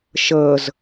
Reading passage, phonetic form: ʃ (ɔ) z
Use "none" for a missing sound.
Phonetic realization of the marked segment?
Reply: ɤ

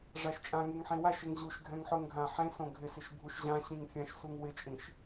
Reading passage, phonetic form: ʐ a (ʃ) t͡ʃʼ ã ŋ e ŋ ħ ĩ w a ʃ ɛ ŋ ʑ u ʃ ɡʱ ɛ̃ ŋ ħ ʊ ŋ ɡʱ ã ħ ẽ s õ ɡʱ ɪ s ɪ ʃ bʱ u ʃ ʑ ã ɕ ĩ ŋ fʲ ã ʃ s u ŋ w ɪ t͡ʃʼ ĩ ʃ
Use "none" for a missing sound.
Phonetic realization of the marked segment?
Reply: ʃ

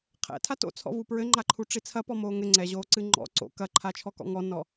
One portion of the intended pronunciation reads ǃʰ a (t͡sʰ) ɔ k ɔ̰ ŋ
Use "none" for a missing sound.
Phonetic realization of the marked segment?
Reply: t͡ʃʰ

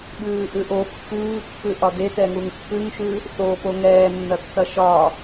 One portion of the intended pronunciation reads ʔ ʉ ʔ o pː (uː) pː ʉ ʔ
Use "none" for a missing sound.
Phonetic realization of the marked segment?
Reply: ʉː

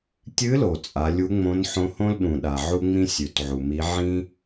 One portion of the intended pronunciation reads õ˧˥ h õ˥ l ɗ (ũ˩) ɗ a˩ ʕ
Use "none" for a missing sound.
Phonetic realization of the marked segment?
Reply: ũ˩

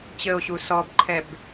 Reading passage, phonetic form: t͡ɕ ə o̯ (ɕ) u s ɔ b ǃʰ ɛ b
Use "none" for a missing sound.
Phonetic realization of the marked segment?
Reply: ɕ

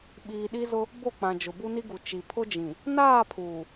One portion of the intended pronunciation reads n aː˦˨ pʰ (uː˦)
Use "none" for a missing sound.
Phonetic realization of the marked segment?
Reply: uː˨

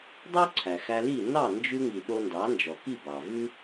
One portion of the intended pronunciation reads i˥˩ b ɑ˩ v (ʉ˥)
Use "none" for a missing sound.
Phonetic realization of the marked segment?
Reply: ʉ˥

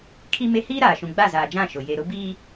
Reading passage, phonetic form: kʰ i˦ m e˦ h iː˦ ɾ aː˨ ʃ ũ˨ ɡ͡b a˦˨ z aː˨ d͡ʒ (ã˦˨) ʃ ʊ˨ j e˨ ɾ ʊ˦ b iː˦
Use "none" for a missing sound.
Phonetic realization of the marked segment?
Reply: ã˦˨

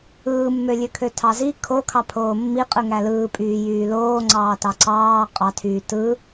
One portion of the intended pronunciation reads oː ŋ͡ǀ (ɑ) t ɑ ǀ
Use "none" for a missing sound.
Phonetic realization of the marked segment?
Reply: ɑː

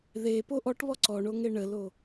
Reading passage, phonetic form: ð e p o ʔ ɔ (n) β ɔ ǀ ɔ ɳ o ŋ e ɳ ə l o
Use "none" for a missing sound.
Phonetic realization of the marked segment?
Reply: ʈ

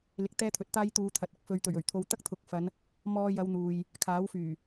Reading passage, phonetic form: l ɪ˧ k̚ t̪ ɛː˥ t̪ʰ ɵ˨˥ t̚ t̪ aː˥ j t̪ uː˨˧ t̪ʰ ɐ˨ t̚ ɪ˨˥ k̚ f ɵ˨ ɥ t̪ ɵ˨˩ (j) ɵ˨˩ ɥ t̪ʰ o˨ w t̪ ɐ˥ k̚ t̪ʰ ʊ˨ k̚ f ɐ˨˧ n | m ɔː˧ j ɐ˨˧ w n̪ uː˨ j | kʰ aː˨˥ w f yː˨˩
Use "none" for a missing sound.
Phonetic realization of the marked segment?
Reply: ɥ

